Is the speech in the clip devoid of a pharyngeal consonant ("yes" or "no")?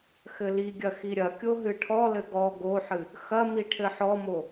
no